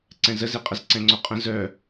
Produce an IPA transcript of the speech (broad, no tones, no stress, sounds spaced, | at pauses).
ǀ ɛ̃ z ə z e qʼ ə z ǀ ɛ̃ ŋ͡ǀ o qʼ ə̃ z œ